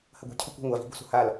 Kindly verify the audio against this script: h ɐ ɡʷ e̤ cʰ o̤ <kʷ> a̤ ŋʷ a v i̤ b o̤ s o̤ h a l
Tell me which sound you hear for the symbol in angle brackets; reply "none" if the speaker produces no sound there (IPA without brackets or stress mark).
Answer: kʷ